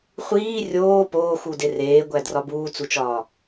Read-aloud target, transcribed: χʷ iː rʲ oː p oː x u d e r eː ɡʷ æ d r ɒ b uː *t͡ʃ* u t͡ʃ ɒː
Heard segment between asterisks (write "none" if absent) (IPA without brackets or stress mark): t͡s